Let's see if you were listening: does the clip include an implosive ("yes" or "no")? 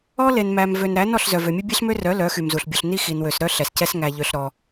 no